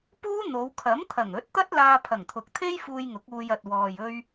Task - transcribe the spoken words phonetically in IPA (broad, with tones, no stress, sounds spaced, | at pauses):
p uː˥ n̪ o˨˧ w kʰ ɐ˨˥ m t̪ʰ ɐ˨˩ ŋ ɵ˨˥ t̚ t̪ ɐ˥ t̚ l aː˧ pʰ ɐ˨˩ ŋ t̪ʰ ʊ˨ k̚ t̪ʰ e˥ j f uː˧ j ŋ ʊ˨˥ k̚ uː˧ j ɐ˨ t̚ w ɔː˨ j ɵ˧ ɥ